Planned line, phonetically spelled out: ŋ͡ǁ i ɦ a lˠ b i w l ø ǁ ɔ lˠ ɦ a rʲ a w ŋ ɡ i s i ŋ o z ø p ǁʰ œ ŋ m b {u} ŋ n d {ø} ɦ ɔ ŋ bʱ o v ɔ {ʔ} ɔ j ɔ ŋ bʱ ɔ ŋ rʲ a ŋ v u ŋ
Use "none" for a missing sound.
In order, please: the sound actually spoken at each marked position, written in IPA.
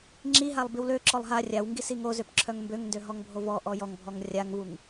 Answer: ø, ø, ʔ

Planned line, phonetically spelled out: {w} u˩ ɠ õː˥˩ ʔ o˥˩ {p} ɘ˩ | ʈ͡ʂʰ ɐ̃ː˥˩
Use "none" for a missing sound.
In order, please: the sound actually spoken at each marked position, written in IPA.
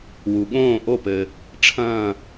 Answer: w, p

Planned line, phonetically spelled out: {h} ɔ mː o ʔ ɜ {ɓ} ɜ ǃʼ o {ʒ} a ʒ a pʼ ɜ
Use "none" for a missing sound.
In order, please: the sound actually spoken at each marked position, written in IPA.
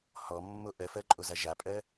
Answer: h, f, z

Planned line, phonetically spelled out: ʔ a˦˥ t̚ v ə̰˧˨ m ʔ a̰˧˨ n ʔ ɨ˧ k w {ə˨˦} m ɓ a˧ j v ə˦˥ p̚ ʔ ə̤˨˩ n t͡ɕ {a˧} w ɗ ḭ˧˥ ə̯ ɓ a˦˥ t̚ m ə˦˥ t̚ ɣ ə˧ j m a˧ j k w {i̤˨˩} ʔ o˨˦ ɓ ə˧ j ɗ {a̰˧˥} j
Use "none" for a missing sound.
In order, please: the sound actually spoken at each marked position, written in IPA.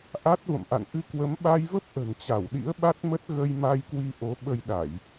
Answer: ə˨˦, a˧˩, i˧, a˧˩˨

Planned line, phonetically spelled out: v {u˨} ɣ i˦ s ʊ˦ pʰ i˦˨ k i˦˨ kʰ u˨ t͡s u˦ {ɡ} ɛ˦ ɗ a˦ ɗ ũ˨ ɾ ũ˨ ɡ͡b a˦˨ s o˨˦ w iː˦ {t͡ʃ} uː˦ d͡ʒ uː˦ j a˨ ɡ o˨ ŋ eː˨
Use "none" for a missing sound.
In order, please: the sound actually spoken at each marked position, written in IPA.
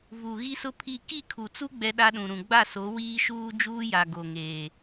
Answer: u˨, ɡ͡b, ʃ

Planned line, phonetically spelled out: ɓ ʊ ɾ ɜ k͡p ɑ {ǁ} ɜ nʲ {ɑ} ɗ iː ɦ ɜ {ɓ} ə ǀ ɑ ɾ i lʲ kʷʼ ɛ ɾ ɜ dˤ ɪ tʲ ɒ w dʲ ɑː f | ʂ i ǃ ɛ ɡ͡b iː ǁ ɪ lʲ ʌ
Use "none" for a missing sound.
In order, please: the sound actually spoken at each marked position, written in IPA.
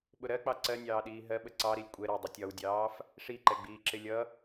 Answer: ǀ, ɑː, ɓ

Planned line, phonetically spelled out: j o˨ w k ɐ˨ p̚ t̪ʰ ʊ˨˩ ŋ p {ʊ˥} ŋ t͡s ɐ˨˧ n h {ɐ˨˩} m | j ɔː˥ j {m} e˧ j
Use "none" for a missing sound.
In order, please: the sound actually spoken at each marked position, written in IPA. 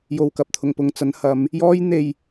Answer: ʊ˨, ɐ˨˧, n̪

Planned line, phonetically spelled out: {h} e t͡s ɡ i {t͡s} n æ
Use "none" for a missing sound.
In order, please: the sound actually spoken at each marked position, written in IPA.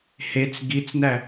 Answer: h, t͡s

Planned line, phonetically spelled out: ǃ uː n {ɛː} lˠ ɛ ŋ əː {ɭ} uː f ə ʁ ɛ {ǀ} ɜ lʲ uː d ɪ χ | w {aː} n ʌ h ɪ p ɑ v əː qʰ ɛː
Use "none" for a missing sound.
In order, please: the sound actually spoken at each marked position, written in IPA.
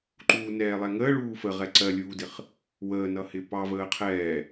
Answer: ɛː, ɭ, ǀ, əː

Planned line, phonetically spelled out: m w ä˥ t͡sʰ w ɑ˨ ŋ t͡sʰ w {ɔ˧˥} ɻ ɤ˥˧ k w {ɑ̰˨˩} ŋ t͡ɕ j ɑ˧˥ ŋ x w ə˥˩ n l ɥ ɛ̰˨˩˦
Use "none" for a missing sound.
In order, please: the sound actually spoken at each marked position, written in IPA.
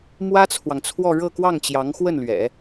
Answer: ɔ˥˧, ɑ˥˩

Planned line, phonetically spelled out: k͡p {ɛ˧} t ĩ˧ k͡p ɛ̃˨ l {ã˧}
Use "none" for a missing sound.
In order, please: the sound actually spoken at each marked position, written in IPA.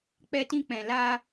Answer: ɛ˧, a˧

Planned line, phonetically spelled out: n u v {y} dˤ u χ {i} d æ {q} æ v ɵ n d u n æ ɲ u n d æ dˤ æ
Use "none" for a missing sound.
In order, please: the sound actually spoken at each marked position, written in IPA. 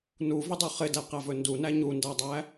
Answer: ɪ, ɪ, q

